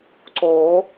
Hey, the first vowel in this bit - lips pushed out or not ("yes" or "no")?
yes